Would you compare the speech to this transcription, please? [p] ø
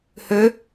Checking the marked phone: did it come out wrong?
yes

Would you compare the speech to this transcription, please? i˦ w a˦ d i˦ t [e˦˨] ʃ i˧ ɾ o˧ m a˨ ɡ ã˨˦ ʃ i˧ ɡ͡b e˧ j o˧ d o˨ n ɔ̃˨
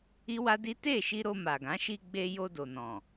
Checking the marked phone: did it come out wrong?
no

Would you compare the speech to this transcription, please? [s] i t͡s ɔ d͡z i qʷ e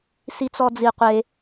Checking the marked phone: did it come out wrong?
no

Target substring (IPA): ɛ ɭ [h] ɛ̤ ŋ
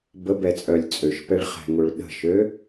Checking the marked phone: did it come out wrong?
yes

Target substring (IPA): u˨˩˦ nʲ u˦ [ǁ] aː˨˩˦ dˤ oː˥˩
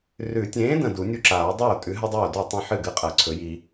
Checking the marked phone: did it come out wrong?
no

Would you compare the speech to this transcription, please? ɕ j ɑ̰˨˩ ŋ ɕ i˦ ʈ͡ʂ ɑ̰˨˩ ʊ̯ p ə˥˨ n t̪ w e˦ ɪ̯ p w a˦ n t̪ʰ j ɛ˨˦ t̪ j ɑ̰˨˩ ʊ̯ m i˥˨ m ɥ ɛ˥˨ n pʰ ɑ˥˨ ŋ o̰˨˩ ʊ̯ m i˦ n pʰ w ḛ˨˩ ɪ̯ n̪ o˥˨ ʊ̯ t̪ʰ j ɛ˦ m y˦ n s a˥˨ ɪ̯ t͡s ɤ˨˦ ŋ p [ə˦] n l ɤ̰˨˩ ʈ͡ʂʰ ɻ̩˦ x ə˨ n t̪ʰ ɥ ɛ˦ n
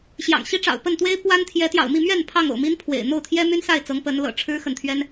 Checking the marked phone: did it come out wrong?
yes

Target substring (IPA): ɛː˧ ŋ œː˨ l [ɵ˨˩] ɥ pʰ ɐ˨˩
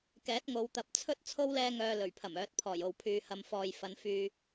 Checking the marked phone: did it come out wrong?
no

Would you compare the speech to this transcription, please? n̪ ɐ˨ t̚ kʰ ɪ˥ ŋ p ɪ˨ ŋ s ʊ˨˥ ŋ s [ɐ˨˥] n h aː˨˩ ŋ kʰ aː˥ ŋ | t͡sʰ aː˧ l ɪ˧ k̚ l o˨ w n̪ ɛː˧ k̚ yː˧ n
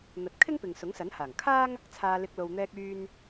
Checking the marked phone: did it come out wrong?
no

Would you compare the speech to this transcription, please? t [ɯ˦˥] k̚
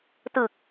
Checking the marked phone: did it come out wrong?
yes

